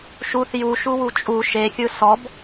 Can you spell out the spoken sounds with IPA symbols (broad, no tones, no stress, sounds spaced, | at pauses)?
ʃ u θ j u ʃ u w u t͡ʃʼ u ʃ e xʲ ɯ s ɔ b